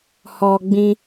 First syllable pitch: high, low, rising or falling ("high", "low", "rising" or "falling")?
low